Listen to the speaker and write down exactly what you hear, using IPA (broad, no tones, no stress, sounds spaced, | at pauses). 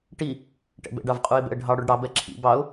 ʈ i | ʈ ɛ̰ b ɛ̰ ɖ ɑ v qʼ u ɪ̯ b ɛ̰ ə̯ ɖʱ ɑ ɽ o ɖ ɽ ɑ b ɛ ǁʰ ḭ b ɑ ʊ̯